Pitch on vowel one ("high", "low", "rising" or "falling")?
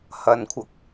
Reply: low